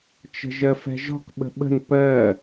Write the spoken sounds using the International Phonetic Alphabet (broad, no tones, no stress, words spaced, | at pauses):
t͡ʃə̤ʒɜfɛ̤ʒɔ̤k ɓə̤ɓə̤n pɜ